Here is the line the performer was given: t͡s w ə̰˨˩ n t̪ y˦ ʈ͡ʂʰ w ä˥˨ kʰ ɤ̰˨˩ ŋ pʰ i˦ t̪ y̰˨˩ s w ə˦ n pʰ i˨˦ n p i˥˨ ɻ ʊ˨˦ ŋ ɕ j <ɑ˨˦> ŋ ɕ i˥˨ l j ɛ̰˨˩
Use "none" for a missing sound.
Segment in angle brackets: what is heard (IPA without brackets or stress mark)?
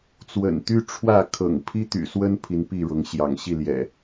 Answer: ɑ̰˨˩